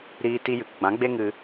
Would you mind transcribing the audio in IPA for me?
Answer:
ɾ iː˧ t i˧ j ɨ˨ k ɡ͡b ã˨˦ ɡ͡b e˦ ŋ ɨ˧

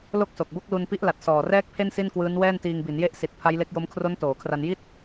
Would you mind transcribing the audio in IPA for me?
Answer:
l o˥˩ k̚ s o˨˩ k̚ b o˥˩ k̚ l u˧ n p i˦˥ ʔ l a˨˩ t̚ s ɔː˨˩ r ɛː˥˩ k̚ pʰ e˥˩ n s i˥˩ n k w ɯː˦˥ n w ɛː˥˩ n t iː˧ ŋ b i˩˦ n j e˥˩ ʔ s i˨˩ t̚ pʰ a˦˥ j l e˦˥ k̚ j o˦˥ m kʰ r o˦˥ n t oː˩˦ kʰ r a˧ n j i˥˩ t̚

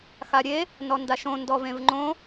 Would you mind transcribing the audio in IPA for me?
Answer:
x a ɾʲ e | n ɔ n d a ʃ õ n d ɔ v ẽ v ŋ͡ǃ õ

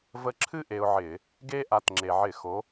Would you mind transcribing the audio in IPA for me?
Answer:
v ə˧ ǁʰ ɨ˥ ʔ e˧ ʊ̯ ʕ ɪ˧˩˧ | ɡ e˥ ʔ a˨˥ t ŋ͡ǁ e˩ ʕ ɪ˧˩˧ x o˨˥

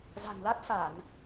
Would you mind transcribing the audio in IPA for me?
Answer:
z a̤˨˩ n l a˦˥ t̚ f a˧˩˨ n

